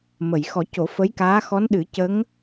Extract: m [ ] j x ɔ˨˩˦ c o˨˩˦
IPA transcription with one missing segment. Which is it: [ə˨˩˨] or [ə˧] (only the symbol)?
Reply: ə˨˩˨